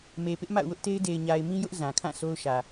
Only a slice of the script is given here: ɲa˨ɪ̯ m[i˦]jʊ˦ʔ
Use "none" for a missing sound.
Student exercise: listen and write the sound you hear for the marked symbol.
ĩ˦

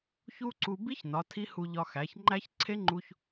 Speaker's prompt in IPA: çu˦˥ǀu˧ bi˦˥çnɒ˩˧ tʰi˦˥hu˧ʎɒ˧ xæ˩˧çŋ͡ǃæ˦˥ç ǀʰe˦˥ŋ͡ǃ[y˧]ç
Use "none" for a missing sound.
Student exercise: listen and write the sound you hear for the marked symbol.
u˧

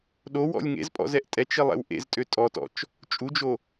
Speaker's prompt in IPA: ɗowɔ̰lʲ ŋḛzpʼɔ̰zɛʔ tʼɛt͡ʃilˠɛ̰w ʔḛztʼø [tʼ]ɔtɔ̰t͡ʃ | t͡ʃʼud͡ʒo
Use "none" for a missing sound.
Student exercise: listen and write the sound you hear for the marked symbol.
tʼ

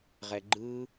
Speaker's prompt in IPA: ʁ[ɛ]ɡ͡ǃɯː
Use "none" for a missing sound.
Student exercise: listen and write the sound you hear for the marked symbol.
ɛ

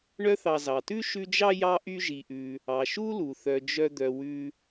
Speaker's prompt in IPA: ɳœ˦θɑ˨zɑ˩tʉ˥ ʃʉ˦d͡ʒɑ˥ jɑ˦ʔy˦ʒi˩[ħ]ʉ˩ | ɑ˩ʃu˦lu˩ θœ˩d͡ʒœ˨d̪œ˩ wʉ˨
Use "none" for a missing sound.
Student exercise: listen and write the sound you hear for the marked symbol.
ʔ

